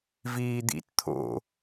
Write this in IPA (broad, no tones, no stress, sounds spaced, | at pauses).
v iː d̪ ḭ t t̪ʰ o̰